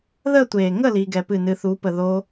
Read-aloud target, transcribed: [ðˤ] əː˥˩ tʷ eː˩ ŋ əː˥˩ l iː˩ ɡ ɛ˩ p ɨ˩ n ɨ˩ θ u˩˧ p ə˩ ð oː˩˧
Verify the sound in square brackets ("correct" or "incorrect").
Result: incorrect